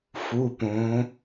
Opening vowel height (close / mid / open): close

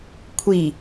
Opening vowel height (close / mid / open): close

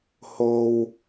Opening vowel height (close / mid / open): mid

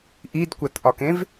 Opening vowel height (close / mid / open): close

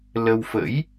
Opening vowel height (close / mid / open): mid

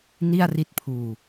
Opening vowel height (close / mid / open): close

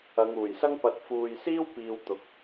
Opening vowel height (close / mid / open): open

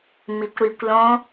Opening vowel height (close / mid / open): close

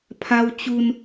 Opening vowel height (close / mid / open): open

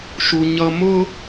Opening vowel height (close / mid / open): close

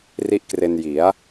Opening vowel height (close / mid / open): close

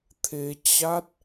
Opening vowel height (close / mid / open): mid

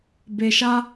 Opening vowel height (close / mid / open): mid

